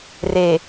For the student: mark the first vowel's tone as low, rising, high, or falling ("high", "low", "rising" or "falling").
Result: low